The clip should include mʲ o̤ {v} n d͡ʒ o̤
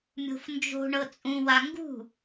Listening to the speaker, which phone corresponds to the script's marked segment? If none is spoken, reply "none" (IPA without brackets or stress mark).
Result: f